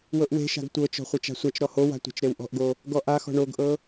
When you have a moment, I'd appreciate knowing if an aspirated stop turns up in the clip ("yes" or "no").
no